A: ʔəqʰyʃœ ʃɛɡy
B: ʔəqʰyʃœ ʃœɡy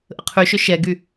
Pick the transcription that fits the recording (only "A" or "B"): A